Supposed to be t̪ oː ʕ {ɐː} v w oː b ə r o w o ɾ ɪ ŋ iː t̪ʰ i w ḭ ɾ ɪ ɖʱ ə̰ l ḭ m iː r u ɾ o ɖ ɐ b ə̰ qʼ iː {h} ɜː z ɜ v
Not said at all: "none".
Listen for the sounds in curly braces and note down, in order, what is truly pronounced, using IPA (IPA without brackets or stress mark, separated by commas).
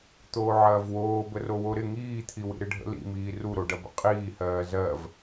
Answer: ɐː, h